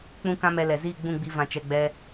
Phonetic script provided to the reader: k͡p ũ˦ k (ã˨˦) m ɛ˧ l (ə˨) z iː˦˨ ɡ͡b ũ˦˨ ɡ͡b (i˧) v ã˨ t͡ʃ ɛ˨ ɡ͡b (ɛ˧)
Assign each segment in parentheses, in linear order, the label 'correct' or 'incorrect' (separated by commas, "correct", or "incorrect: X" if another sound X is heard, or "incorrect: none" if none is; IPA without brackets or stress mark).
incorrect: ã˦, incorrect: ɛ˨, correct, correct